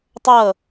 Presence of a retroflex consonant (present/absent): absent